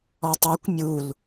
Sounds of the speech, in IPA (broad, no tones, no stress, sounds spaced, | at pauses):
ɔ tˤ a kʷ mʲ u l